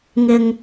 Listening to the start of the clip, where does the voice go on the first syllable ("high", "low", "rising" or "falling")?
low